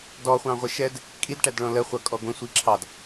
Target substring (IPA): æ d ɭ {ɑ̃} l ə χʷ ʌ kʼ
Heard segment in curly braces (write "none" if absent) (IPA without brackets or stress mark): ɔ̃